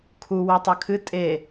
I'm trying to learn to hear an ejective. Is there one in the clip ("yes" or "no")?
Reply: yes